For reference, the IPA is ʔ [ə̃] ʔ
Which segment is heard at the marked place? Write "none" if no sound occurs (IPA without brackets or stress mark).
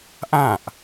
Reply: ã